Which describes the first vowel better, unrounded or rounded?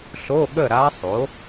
rounded